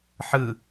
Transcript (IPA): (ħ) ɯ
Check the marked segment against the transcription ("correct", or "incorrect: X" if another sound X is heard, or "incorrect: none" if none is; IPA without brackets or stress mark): correct